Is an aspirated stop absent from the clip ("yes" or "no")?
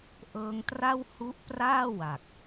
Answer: yes